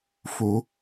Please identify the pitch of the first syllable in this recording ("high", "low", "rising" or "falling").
rising